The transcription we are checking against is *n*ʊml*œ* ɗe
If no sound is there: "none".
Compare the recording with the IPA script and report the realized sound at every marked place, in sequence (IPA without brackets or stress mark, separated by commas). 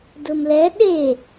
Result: d, ɛ